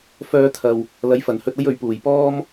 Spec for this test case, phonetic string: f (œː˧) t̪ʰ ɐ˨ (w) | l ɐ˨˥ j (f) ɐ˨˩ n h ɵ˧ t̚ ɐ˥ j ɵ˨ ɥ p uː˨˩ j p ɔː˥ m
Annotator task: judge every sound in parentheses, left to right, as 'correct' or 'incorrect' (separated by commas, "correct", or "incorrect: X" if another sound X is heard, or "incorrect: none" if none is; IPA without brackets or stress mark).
correct, correct, correct